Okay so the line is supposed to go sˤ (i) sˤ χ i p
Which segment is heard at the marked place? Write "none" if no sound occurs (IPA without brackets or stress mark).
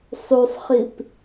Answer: y